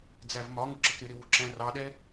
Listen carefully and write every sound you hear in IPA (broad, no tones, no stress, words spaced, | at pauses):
d͡zævmɒŋʊ ǁəkɾɪɾɪ wuǁæ̃rɑɗɛ